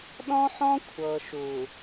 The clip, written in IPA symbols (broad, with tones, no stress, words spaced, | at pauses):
ɗɔ̃˦ħɔ̃˦ kʷʰɤ˨ʃu˨